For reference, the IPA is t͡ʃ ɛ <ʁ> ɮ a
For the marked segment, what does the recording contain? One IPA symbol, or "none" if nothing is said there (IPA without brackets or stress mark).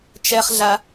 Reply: χ